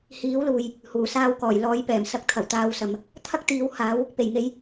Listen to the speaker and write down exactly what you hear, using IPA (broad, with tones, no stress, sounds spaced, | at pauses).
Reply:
h iː˨˥ w l uː˨ j | h uː˨˩ s aː˧ w k ɔː˨˩ j l ɔː˨˧ j p ɛː˨˩ m s ɐ˨˥ k̚ t̪ʰ ɐ˨˩ w t̪ aː˧ w s ɐ˨ m | t̪ʰ ɐ˥ k̚ t̪ iː˨˥ w h aː˨˥ w | p e˨˩ j ŋ e˨˧ j